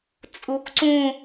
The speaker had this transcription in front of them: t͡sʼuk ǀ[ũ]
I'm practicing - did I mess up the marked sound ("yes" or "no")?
no